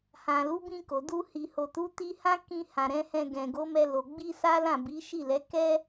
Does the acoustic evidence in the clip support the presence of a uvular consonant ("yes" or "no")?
no